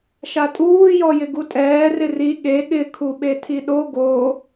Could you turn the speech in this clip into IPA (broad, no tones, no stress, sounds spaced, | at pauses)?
ʃ a tʼ uː j ɔ j ɪ ɡ u tʼ ɛː r ɪ r i ɠ e ɠ ɪ kʰ u ɓ e tʰ i ɗ o ɡ o